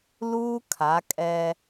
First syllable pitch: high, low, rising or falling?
high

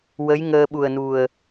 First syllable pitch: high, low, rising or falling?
rising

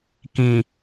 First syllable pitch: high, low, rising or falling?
low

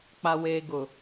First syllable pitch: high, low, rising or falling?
low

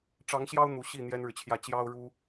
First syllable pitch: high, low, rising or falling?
rising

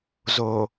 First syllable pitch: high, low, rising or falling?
low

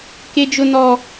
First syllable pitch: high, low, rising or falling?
high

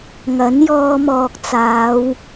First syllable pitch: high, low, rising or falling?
rising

